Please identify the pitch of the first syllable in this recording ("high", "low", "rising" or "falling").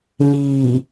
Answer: low